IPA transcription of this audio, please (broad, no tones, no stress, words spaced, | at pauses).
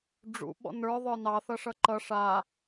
ɖ͡ʐṵ ɓɔ̰nə˞ ðˤə˞nɑ θʌʂʌǃʌ ʂa